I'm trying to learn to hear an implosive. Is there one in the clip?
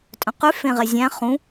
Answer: no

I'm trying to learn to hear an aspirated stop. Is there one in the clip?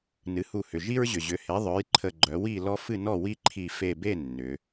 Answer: yes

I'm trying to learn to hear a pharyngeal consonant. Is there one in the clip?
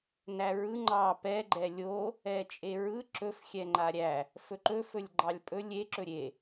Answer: no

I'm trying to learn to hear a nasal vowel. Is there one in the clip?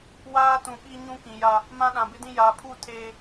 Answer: yes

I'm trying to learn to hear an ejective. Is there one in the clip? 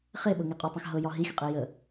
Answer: yes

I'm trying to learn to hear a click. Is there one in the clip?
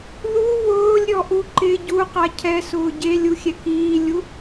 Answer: yes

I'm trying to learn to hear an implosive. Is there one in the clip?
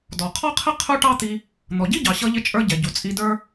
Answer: no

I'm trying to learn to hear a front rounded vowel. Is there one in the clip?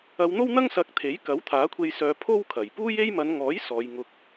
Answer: yes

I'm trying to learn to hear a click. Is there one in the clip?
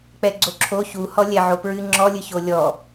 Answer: yes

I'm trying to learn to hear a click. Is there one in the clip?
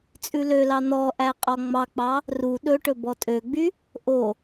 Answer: no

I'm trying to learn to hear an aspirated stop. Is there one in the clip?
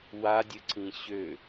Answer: no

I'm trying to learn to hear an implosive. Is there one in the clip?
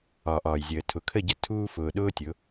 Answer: yes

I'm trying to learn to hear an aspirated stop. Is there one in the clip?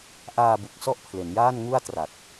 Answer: yes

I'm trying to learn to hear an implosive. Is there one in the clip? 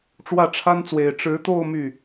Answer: no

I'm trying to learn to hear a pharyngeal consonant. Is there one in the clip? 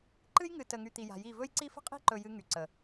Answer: no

